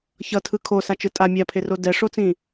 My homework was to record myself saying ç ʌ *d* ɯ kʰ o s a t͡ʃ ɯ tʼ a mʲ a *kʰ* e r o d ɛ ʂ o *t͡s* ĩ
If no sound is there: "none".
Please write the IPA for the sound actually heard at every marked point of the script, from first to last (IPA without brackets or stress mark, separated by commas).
tʰ, pʰ, t͡s